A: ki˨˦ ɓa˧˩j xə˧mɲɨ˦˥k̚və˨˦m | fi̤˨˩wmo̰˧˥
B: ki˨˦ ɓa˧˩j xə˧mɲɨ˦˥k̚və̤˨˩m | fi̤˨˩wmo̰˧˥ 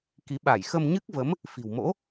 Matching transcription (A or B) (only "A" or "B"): A